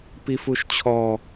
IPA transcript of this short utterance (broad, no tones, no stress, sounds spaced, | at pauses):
p i f u ʃ t͡ɕʰ ɔ